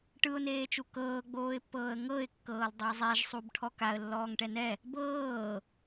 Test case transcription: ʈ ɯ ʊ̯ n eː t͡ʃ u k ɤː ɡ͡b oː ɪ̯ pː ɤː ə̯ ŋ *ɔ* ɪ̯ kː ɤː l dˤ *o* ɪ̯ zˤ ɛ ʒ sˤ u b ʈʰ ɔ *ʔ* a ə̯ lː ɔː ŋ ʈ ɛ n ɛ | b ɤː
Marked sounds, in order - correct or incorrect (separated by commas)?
incorrect, correct, incorrect